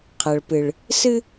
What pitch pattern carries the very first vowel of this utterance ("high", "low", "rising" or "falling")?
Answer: low